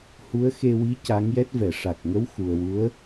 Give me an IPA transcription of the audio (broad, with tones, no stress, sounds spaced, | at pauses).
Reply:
h u˧˥ ə̯ x e˧ w i˧˥ c a˧˥ ŋ j ɛ˦˥ t̚ v ɛ˨˩˨ ʂ a˨˩ k̚ ŋ ə˧˥ w x u˨˩ ə̯ w u˧˥ ə̯